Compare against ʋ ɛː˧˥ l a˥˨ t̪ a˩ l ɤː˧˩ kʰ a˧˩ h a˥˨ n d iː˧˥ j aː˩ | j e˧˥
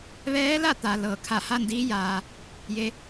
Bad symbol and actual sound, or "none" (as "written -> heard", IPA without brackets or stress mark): none